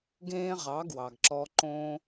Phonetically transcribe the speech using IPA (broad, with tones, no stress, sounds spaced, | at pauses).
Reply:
ɡ ẽː˦ ʁ ɑ˨˦ ɡ w ɑ˨ ɡ ǁ ɔː˧ ǃ õː˦